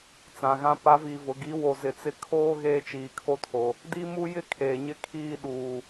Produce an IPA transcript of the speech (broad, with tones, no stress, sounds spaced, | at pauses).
t͡s ã˨ ɣ ã˦ p a˨˦ v iː˨ v ʊ˨ ɡ i˨˦ w o˨ z ɪ˨ t͡s ɪ˦ kʰ oː˦ ɣ eː˦ t͡ʃ iː˨ kʰ o˦ tʰ o˨ | d i˦ m u˦ j ɪ˦ kʰ eː˨ ɲ ɪ˦ kʰ iː˦˨ ɗ uː˨